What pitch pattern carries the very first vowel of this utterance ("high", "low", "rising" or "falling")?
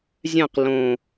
falling